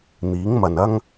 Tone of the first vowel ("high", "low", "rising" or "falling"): rising